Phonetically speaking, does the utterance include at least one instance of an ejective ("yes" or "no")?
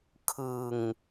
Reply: no